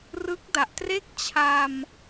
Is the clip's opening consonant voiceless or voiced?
voiced